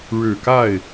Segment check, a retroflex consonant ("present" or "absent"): present